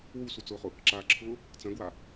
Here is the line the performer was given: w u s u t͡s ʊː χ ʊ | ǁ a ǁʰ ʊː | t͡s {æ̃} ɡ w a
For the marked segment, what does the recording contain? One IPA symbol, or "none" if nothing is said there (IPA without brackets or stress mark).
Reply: ɐ̃